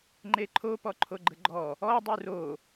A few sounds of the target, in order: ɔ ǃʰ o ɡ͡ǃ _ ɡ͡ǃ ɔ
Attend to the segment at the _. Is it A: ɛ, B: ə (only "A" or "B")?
B